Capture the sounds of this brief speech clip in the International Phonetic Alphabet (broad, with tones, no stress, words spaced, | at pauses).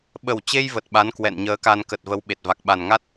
ɓə˨˩wt͡ɕe˧j və˨˩t̚ɓa˨˦n kwɛ̰˧˨nɲəː˨˦ka˧n kə˨˩t̚və˨˦w ɓe˨˩t̚va˨˩k̚ɓa˨˩n ŋa˦˥t̚